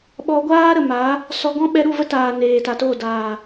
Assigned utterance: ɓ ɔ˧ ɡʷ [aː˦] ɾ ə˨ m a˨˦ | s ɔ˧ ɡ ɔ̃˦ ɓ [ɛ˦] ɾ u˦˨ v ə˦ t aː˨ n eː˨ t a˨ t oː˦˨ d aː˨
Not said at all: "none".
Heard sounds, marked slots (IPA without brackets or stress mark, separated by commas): aː˦, ɛ˧